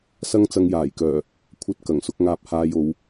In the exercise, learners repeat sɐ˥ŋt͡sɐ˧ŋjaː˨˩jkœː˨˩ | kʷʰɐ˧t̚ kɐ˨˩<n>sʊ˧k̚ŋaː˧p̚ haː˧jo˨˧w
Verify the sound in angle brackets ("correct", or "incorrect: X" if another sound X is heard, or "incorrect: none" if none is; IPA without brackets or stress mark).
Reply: incorrect: ŋ